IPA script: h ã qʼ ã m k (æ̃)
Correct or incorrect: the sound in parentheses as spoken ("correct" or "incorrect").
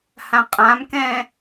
incorrect